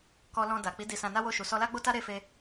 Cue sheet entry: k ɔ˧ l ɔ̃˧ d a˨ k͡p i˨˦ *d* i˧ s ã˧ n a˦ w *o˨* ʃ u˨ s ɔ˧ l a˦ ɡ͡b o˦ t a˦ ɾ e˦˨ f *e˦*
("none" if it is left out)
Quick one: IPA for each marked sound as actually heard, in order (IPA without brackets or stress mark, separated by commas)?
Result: d, o˦˨, e˧